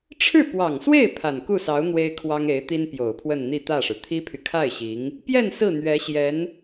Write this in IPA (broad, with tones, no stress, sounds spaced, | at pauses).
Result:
ʈ͡ʂʰ ɻ̩˥˩ p w ɑ˨˩ ŋ s w e˥˩ ɪ̯ pʰ a˨˩ n k u˥˩ s ɑ˧˥ ʊ̯ n̪ w e˥ ɪ̯ kʰ w ɑ˥ ŋ e˧˥ ɪ̯ t̪ i˥ n p j o˨˩ ʊ̯ pʰ w ə˥˧ n n̪ i˥˧ t̪ ä˥˩ ʂ ɻ̩˩ t̪ʰ i˥ pʰ y˨ kʰ a˥˩ ɪ̯ ɕ i˧˥ ŋ | p j ɛ˥˧ n s ɹ̩˥˩ n̪ ɥ ɛ˧˥ ɕ j ɛ˧˥ n